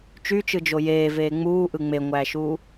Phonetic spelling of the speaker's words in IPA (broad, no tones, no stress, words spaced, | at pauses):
t͡ʃyt͡ʃɯd͡ʒo jeːveː ŋ͡muːʔɯ ŋ͡meŋʷæːʃuː